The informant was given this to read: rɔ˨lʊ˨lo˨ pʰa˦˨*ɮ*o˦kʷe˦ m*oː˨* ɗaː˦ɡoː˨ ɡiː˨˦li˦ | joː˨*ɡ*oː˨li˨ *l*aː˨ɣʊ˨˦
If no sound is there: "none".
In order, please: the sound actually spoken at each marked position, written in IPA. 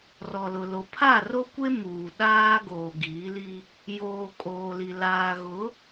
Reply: r, uː˨, kʼ, l

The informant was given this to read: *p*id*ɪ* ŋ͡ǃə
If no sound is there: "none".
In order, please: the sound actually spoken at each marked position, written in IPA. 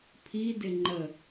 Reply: pʰ, ɪ

